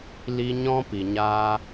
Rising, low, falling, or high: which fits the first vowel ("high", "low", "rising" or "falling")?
high